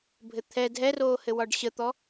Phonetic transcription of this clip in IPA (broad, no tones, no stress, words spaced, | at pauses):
bʱɘt̪ʰɛ dʱɛroːhɘwɒɖ ɕət̪ɔ